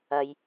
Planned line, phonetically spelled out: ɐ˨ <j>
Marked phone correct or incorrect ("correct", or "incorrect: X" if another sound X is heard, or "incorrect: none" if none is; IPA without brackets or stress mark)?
correct